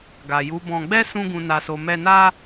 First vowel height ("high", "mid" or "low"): low